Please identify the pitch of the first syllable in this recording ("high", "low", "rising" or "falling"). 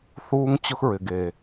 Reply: high